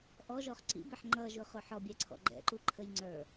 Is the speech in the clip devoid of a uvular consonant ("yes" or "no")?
no